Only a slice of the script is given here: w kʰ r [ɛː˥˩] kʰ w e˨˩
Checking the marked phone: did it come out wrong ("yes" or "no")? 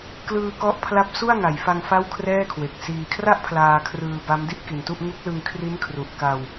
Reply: no